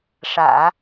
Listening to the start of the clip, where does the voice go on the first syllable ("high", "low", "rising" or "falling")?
low